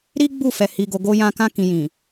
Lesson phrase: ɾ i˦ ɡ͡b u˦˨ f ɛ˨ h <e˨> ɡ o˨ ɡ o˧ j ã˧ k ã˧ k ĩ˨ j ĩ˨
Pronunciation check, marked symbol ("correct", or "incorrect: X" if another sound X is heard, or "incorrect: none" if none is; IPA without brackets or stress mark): incorrect: i˨